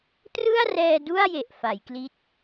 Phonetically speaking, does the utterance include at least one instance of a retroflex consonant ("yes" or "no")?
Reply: no